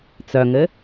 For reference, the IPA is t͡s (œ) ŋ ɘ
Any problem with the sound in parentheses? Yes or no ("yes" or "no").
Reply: no